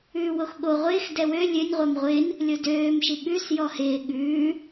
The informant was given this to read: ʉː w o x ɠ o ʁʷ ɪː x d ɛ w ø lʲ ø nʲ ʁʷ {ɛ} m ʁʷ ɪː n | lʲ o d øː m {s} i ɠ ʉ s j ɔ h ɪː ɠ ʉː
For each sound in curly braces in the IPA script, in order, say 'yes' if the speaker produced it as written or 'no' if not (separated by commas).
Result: yes, no